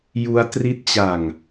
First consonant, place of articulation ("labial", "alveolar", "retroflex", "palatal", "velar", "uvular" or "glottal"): palatal